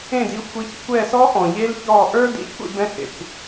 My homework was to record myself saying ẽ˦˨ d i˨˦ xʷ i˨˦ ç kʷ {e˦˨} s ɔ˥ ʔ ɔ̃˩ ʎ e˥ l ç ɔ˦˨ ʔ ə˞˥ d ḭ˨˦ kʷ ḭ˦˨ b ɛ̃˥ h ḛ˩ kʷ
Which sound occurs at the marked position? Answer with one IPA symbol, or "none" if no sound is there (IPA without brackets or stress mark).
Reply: ɛ˦˨